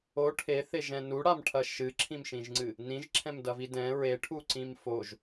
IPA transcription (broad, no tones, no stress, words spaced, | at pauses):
o ʈʰeθeʒɛ̃ nuɽamʈʰɐ ʃɨǁʰĩmʃĩʒŋ͡ǀɨ | nĩʒǁʰɛ̃mdɐvi dɛ̃ ɹeʈʰuǀĩm foʒ